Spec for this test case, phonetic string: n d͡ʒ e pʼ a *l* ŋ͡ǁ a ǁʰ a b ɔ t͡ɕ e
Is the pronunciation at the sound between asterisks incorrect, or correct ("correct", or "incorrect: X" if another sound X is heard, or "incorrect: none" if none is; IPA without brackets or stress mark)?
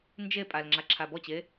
correct